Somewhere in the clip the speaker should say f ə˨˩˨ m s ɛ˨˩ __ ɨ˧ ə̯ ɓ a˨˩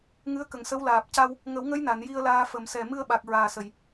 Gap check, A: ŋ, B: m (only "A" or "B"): B